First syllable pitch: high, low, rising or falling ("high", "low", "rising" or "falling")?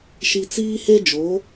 low